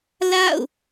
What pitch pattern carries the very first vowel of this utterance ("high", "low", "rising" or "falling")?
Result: falling